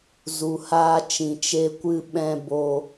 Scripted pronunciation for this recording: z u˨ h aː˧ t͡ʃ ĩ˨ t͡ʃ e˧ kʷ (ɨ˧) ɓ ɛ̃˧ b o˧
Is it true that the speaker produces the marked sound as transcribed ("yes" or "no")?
yes